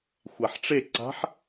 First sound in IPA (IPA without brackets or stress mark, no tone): xʷ